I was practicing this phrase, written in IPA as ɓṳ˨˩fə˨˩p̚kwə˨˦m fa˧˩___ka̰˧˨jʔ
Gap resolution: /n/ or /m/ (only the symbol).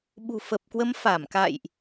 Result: m